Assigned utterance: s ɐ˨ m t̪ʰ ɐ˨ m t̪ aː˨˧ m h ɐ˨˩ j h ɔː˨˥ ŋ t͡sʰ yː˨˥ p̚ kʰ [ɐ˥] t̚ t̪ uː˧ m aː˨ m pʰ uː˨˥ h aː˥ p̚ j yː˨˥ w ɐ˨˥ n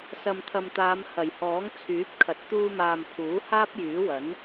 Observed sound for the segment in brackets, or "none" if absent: ɐ˨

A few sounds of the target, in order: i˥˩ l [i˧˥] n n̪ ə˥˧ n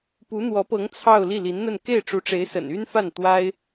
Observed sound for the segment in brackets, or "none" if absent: i˧˥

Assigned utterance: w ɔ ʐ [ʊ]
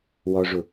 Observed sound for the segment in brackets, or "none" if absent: ʊ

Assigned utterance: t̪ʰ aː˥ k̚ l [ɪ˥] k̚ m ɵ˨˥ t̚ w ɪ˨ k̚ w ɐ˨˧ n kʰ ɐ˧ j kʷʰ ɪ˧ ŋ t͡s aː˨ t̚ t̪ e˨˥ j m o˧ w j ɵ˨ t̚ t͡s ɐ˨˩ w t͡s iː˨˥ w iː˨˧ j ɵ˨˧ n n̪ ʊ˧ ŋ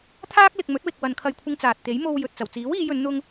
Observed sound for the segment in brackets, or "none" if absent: ɪ˨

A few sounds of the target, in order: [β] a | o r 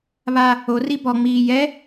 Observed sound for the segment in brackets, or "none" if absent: β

